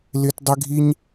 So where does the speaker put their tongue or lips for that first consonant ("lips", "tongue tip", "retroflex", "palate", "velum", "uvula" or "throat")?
tongue tip